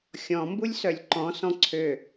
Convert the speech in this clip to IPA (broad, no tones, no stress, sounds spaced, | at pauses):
xʲ ɔ̃ m b u lʲ s œ lʲ ǃ ɔ̃ s ɔ̃ ǀʰ ø